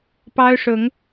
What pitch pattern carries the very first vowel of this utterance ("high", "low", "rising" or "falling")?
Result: high